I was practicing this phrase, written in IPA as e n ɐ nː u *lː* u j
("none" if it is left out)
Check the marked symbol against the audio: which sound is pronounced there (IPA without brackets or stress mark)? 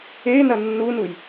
n